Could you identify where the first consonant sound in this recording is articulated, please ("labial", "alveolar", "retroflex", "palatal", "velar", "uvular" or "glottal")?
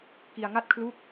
velar